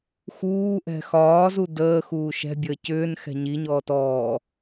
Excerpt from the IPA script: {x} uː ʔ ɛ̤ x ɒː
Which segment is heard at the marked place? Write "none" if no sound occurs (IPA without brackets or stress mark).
x